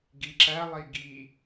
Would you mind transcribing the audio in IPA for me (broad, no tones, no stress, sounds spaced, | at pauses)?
ɡ i ǁ æ lˠ i ɡ i